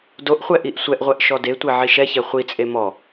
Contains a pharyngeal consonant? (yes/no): yes